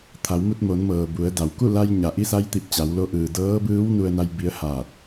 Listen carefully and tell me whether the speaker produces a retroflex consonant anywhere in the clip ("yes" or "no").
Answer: no